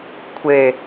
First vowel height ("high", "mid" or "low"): mid